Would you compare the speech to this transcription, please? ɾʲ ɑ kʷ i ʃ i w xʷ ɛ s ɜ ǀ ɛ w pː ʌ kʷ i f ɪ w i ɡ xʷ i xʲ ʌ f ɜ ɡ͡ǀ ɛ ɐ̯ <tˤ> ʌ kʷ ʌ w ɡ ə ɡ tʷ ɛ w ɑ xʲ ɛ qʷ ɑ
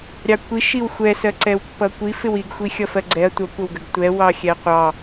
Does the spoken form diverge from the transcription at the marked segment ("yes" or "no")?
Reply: yes